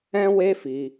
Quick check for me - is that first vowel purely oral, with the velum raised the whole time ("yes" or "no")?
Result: no